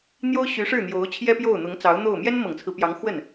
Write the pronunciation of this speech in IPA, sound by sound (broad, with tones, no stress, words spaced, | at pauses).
n̪jo˥ʊ̯ɕy˧˥ʂɻ̩˥˩ n̪jo˧˥ʊ̯ t͡ɕʰjɛ˥pjo˥˩ʊ̯n̪ʊ˧˥ŋ t͡sɑ˧˥ʊ̯n̪o˥˩ʊ̯ mjɛ˥nmɤ˨˩ŋt͡sʰɹ̩˦pjɑ˧˥ŋ xwə˥˩n